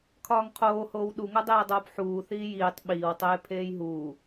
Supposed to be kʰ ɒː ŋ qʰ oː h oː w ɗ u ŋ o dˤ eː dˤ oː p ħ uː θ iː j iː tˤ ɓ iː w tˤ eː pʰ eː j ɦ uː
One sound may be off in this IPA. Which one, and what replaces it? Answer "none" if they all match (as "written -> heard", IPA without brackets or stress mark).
none